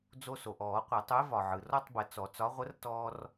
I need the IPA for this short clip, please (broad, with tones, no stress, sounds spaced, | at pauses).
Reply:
d͡z o˧ s o˩ ʔ ɔː˨˩˦ qʷ ɛ˨˩˦ tˤ u˨˥ e̯ v ɒ˩ ʕ ɯ˩ r ɔ˥˧ tˤ b ə˨˩˦ t͡s ɔ˨˩˦ t͡s ɒ˨˥ ʁʷ ə˨˥ r t ɔː˧ r